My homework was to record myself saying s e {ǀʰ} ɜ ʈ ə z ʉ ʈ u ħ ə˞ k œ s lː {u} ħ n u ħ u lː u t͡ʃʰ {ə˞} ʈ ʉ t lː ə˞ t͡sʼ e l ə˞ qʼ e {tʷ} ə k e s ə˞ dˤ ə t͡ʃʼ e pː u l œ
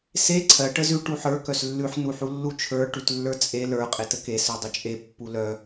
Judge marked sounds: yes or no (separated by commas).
yes, no, yes, no